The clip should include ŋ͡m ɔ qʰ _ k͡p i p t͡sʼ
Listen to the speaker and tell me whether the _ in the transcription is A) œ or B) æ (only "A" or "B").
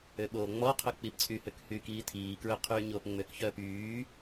A